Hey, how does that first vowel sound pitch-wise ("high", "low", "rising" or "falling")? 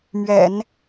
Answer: low